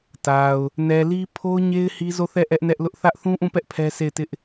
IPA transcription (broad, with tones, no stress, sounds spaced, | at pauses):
t a˨ ʊ̯ | n ɛ˨ l i˦ pʰ o˦ ʊ̯ ɲ e˦ ɪ̯ h i˦ z o˦˨ θ ɛ˦˨ ʔ ɛ˦ ʔ n ɛ˦ ʔ l ʊ˦ ʔ θ ä˦ ʔ θ ũ˦ ʔ ũ˦˨ p ɛ˦ ʔ pʰ ɛ˦ s e˦˨ ɪ̯ t ɪ˦ ʔ